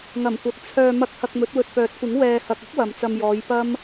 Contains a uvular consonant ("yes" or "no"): no